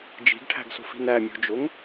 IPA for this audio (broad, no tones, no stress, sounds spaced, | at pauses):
d͡ʒ i̤ ɡ ʈʰ æ̤ ɡ s o̤ f i̤ n æ mʲ o̤ d͡ʒ o ŋ